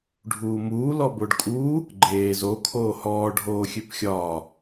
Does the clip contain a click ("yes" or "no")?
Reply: yes